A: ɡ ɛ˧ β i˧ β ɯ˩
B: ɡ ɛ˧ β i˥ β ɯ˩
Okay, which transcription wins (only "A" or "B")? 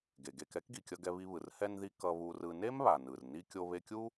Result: A